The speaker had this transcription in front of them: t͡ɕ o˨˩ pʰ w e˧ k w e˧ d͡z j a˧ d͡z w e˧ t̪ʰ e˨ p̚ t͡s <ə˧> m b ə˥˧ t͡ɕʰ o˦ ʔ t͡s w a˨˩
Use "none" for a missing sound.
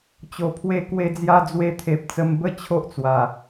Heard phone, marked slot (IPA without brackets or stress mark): ə˧